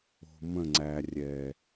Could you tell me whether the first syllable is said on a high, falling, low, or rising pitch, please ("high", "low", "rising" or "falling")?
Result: low